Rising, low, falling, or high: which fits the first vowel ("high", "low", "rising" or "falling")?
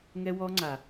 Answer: high